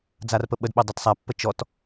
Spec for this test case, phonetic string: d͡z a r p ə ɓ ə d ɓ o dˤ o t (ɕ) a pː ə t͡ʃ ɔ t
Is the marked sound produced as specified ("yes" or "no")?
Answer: no